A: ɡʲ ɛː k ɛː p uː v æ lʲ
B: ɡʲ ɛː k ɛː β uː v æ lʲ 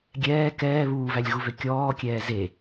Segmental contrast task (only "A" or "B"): B